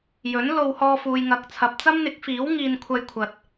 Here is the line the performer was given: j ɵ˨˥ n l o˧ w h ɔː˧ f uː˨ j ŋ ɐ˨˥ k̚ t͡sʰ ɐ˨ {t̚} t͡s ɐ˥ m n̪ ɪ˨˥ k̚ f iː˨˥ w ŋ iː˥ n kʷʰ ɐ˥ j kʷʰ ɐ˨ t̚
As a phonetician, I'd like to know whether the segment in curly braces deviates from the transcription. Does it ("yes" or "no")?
yes